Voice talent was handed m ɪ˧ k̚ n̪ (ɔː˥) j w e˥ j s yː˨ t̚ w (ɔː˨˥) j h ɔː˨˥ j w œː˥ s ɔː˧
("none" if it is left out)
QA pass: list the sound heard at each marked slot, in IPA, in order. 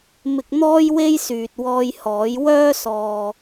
ɔː˥, ɔː˧

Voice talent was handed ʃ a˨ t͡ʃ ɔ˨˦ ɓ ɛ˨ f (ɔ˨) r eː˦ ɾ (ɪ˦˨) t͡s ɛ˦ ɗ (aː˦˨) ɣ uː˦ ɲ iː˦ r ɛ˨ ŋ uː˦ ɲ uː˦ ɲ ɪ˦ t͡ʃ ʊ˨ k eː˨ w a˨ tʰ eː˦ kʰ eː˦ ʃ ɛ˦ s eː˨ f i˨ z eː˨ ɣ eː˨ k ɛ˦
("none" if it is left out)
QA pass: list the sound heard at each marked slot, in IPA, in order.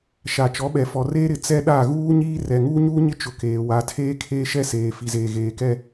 ɔ˨, ɪ˨, a˦˨

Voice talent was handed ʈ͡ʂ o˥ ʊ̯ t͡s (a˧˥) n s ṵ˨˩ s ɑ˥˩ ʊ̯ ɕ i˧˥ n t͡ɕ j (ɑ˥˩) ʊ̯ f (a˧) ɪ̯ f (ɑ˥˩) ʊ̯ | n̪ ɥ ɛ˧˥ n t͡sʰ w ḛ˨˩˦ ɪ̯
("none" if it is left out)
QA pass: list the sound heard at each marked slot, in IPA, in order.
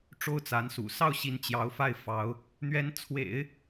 a˧˥, ɑ˧˥, a˥˩, ɑ˧˥

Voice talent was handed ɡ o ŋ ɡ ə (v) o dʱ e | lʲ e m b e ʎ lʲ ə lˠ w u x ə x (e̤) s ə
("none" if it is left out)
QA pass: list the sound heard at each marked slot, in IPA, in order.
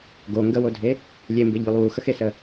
w, e

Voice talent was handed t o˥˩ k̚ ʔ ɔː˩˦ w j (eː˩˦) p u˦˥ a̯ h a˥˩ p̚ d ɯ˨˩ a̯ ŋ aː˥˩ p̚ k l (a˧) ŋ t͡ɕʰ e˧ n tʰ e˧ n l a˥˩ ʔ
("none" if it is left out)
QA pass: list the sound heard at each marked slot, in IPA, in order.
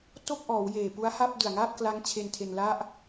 eː˨˩, a˦˥

